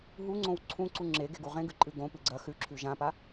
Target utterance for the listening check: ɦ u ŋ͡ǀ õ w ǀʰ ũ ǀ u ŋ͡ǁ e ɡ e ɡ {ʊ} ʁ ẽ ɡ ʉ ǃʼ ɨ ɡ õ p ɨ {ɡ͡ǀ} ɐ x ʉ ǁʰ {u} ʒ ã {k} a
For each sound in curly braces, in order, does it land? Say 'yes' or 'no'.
no, yes, no, no

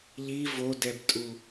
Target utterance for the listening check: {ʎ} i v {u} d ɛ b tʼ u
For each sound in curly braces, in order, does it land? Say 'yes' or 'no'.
yes, no

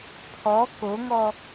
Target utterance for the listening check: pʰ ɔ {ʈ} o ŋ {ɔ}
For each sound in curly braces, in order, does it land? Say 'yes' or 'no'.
no, yes

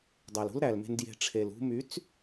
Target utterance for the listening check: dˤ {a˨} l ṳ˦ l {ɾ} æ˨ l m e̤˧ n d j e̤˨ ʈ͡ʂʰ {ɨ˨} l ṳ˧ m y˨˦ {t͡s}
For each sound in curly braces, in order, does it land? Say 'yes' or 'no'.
no, yes, no, yes

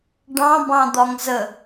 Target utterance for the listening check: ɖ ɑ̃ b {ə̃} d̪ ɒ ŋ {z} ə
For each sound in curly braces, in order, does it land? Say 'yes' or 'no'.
no, yes

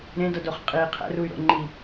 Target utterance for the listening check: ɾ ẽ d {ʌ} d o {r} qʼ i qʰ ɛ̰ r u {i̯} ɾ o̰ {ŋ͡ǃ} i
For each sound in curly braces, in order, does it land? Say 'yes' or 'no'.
yes, no, no, yes

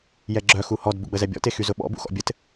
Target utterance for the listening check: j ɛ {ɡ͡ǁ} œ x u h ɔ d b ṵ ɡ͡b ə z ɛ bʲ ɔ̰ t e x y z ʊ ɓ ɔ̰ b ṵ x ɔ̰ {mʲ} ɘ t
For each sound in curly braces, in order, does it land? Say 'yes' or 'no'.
yes, no

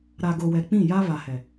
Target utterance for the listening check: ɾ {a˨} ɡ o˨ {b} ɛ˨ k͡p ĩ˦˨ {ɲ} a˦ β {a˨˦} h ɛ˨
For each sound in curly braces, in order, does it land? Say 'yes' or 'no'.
yes, no, no, no

